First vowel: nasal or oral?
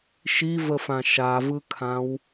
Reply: oral